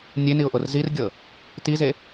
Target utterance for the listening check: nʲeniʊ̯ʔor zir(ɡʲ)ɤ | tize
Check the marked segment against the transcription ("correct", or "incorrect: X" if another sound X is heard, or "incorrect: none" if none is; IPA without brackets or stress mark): correct